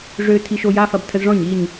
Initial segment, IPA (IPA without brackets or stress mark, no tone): ʐ